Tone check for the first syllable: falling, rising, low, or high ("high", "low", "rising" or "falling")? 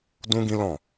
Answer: high